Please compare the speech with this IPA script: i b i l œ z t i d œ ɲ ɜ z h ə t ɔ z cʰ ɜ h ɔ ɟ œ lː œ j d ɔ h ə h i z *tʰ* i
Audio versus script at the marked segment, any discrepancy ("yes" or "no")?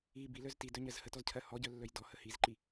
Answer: yes